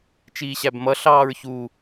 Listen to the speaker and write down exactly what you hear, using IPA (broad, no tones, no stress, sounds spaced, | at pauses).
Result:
t͡ʃ iː ɕ æ b m ʌ ɬ ɑː ɹ ç u